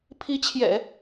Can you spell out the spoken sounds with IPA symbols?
pʰ i˧˥ t͡ɕʰ j ɛ̰˨˩˦

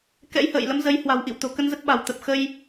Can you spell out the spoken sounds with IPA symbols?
k ɛ̰˧˥ j h ə̰ː˧˨ j l ə˨˦ m z ə˨˦ j h w a̤˨˩ w ʔ ḭ˧˨ w t̪ o̤˨˩ k ə˧ n z ə˦˥ t̚ ɓ a̤˨˩ w t̪ ə˨˩ p̚ x ə˧ j

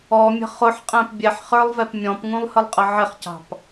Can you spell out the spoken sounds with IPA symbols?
ɔ mʲ ə̤ χ ʊ ħ qʼ æ̃ p bʲ ɛ ħ χ ə˞ lˠ v ɛ p mʲ ɔ̃ p ŋ ũ lˠ h ə lˠ qʼ ə ʕ ɪ χ c ɑ̤ p

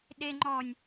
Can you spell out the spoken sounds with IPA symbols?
ɗ e ŋ͡ǃ ɔ nʲ

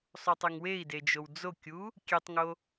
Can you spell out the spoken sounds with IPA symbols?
sˤ u tˤ y ŋ w e i̯ d e d͡ʒ o w d͡z o kʲ u | kʲ e tˤ ŋ o

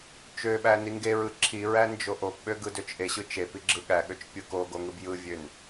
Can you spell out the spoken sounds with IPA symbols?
t͡ʃ ø ɓ æ n i ŋ ɡ e ɹ ɯ ǁʰ i ɹ æ n d͡ʒ o ʔ o p ɓ ø ɡ ɯ d ø t͡ʃ ʔ e ɕ ɯ t͡ʃ e p i ɡ͡ǁ ɯ ɠ æ ɠ ø t͡ʃ pʲ ɯ k o ɡ o ŋ ɯ b j ɯ vʲ ø n

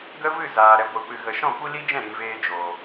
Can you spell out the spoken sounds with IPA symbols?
ɡ ə˦ v ɨ˦˨ z aː˨ ɾ ɛ˨ ɡʷ ɨ˨ p ɨ˨ ɣ ə˨ ʃ ɔ̃˦˨ kʷ i˦ l i˦ d͡ʒ ɛ̃˦˨ ɾ ĩ˨ v eː˧ d͡ʒ oː˨

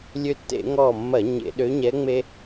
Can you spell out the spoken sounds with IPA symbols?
lʲ ø˧ tː ḛ˧˩˧ ŋ ɔː˧˩ mː ɐ˧˩˧ ɲ ḛ˧˩˧ ɗ ø˧˥ ɲ ɛ˧˥ ŋ͡m e˥

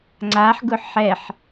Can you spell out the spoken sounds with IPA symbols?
ŋ͡ǀ a ħ ɡ ʊ ħ ɛ ħ

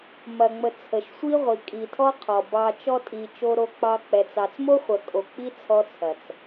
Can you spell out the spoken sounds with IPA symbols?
m ɐ˨ ŋ͡m ə˨ t͡sʰ ə˨ ʃ sʷ i˦ ʁʷ i˨ kʼ i˨ tʰ ɔ˦ qʰ ɔ˨ b ɑ˧ t͡ʃ ɔ˧ tʼ i˨ t͡ʃ o˦ ɾ o˦ k͡p ɑ˦ k͡p ɛ˨ t͡s ɑ˨ t͡s m o˦ χʷ ɐ˨ kʼ o˨ k͡p i˦ t͡sʰ ɔ˦ t͡sʰ ɐ˨ t͡s

